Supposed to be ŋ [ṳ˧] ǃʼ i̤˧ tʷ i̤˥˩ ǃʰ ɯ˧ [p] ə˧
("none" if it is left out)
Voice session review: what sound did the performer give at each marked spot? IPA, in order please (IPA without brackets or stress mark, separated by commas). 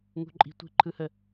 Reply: ṳ˧, h